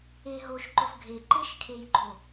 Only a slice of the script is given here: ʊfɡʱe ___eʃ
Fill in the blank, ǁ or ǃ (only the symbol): ǃ